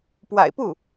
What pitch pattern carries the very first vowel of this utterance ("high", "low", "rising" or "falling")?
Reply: low